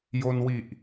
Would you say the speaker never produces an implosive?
yes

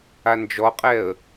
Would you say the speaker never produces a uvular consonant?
no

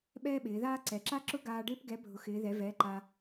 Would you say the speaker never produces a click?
no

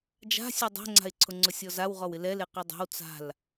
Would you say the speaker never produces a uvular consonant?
no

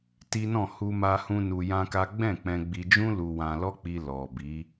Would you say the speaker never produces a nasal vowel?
no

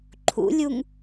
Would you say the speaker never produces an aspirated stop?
no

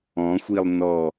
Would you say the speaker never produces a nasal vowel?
no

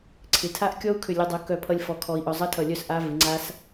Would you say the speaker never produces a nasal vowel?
yes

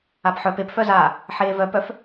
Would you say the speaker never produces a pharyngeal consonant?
no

